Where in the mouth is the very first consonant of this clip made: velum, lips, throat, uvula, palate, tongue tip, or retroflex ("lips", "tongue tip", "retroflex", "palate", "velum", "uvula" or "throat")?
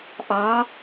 throat